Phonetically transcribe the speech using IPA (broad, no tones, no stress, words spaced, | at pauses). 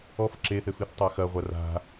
ɔf ǁeθɘfɨθtˤa xɐʁʷar a̤